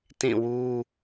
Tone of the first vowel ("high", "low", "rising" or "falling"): falling